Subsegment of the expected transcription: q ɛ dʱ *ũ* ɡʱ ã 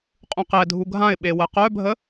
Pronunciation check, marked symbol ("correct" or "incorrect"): incorrect